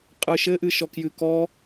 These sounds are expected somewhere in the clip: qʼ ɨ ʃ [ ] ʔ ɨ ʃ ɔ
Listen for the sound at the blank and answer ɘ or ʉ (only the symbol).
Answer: ɘ